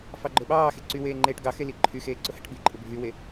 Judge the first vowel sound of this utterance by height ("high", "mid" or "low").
low